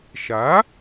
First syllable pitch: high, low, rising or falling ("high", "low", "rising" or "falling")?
rising